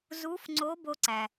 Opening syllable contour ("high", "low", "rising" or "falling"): rising